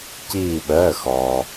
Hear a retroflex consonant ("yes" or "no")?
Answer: no